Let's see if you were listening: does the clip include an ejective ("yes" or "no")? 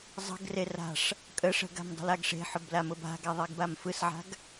yes